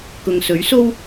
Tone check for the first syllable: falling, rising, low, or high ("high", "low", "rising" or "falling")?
low